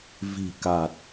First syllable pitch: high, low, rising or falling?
low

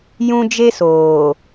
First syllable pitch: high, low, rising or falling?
high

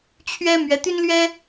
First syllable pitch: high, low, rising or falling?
high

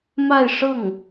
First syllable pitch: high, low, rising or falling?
falling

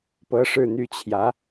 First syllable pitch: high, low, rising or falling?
high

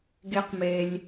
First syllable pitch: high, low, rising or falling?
high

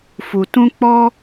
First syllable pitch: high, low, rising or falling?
low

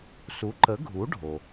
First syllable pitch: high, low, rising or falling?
rising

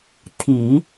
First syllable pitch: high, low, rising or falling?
low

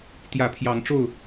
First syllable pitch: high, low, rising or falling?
rising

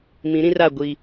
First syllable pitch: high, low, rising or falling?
rising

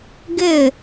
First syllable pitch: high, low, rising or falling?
falling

